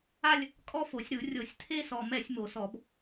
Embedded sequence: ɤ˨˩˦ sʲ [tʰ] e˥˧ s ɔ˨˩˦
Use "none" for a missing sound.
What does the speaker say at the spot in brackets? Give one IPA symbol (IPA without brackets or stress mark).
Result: tʰ